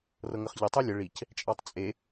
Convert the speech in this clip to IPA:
r ɤ ŋ ə χ ʎ ə tˤ u lʲ ə ɭ i c | t͡ʃʼ ɑ tˤ t͡sʼ e

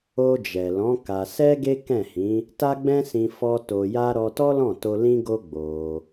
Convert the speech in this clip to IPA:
o˧ d͡ʒ ɛ˨ l ɔ̃˨˦ k a˧ s ɛ˦ ɡ e˦ k ɛ̃˦˨ h ĩ˨˦ | t a˦ ɡ͡b ɛ̃˦ s ĩ˧ f ɔ˧ t o˧ j a˦ ɾ ɔ˧ t ɔ˦ l ɔ̃˦˨ t o˧ l ĩ˦ ɡ o˦ ɡ͡b o˧

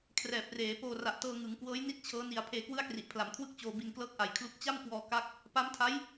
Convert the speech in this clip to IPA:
kʰ r ɛː˨˩ p̚ r eː˩˦ p oː˧ r a˨˩ ʔ t ɤː˧ ŋ ɯ˩˦ ŋ k w ɤː˦˥ j n i˥˩ t̚ t͡ɕʰ ɤː˦˥ n i˧ a̯ pʰ eː˧ k w ɯ˥˩ a̯ k r i˨˩ ʔ pʰ l a˩˦ m kʰ w ɯ˥˩ k̚ t͡ɕ oː˧ b i˧ n k l ɤː˥˩ k̚ ʔ a˨˩ j kʰ l u˦˥ k̚ t͡ɕ a˥˩ m k w ɔː˧ k a˦˥ k̚ | p a˦˥ m tʰ a˦˥ j

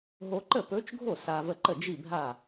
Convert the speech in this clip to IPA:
ɦ o˧ ǃ ə˥˩ p ɵ˧˥ t͡ʃ ɡʱ o˥˩ s a˧ v ə˥˩ ǃ ə˥˩ d͡ʒ i˥˩ bʱ a˥˩

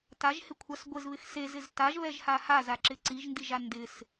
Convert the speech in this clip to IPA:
t a ʒ h ɪ kʷʰ a s ɡʷ ɪ z β ɪ x s e z ɪ z t a ʒ β ɛ ʒ h a h a z a ǁ ɪ ǀ i ʒ n d i ʒ a n d ɪ s

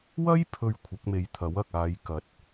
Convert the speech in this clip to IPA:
w ɐ˥ j pʰ ɵ˨ ɥ kʷʰ ɐ˨˥ k̚ m e˨˧ j t̪ʰ ɐ˨˥ w ɐ˨ k̚ aː˨˧ j k ɐ˨˥ t̚

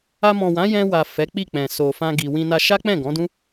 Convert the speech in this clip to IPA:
a˧ m ɔ̃˨ w ã˨˦ j ɛ̃˧ w a˨ f ɛ˨˦ k͡p i˦˨ k͡p ɛ̃˨ s o˨ f ã˧ ɡ i˧ w ĩ˧ n a˧ ʃ a˦ k͡p ɛ̃˦˨ ɡ ɔ̃˨˦ d ũ˦

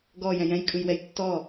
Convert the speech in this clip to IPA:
ɡ ɔ j ɛ̃ j ɛ̃ j kʼ ɯ j w ɛ j tː ɔ

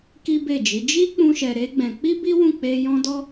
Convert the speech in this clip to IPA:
k i˦ b e˦˨ d͡ʒ i˨˦ d͡ʒ i˦ k͡p ũ˧ ʃ ɛ˧ ɾ e˦ ɡ͡b ɛ̃˧ k͡p i˦ b i˦ w ũ˦˨ k͡p e˧ j ɔ̃˦ d ɔ˦

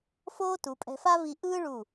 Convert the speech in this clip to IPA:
f oː˥ t u˩˧ pʼ ɛ̤˧ f a˥ v i˧ ʔ ɯː˥ ɭ u˧˩

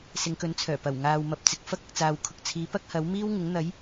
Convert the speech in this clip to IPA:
s ɪ˨˧ ŋ k ɵ˨˥ n t͡sʰ œː˨˩ p ɐ˨˩ w ŋ aː˨ w m ɐ˨ p̚ t͡s ɪ˨ k̚ f ɐ˥ k̚ ɐ˨ k̚ t͡s aː˨ w kʰ ʊ˨ k̚ t͡sʰ iː˨˥ p ɐ˥ k̚ h ɐ˨˥ w m iː˥ w ŋ ɪ˨˥ ŋ n̪ ɐ˨˥ j

